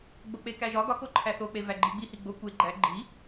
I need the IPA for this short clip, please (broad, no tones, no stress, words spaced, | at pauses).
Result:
ɡ͡bok͡pekæʒɒ ɡɒko ǃʰæθok͡pe væɡ͡ǃiɡ͡bihi ɡ͡bo kʷe ɡ͡ǃæ ɡ͡ǃi